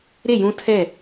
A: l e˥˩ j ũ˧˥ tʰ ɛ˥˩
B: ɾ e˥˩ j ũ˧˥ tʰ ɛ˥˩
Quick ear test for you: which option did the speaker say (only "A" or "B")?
B